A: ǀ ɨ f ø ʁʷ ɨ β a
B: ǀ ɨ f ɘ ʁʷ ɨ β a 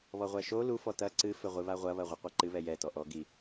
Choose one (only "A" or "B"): B